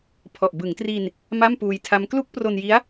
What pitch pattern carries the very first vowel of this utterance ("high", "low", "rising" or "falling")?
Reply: low